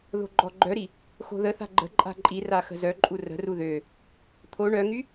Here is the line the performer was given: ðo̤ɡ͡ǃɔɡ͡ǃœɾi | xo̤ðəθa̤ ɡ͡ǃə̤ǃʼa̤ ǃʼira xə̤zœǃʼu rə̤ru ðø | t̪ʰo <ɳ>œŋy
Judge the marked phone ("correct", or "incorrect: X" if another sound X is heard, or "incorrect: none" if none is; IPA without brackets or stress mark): correct